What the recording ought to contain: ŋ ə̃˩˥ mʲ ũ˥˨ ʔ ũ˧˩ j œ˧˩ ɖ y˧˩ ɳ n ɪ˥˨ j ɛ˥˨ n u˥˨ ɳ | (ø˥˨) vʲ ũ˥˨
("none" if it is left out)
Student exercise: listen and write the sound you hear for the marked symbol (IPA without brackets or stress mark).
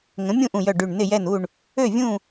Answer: ø˥˨